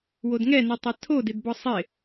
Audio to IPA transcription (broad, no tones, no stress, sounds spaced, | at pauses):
w o d ŋ ɛ n ɨ tˤ a tʰ o d ɪ d b ɔ sˤ ɪ